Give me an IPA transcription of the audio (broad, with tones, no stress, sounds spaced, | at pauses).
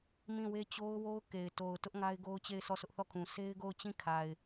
m ĩ˦˨ w e˦ t͡ɕ o˦ ʊ̯ w o˦ ʊ̯ k e˨ ɪ̯ t o˨ ʊ̯ t ʊ˦ ʔ ŋ a˦ ɪ̯ ɡ o˦ ʊ̯ t͡ɕ e˦˨ ɪ̯ s ɔ˦˨ sʰ ʊ˦ ʔ θ ɔ˦˨ kʰ ũ˨ s e˦ ɪ̯ ɡ o˦˨ ʊ̯ t͡ɕ ĩ˦˨ kʰ a˨ ɪ̯